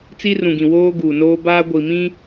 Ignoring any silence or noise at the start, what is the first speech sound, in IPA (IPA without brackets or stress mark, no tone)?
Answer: t͡s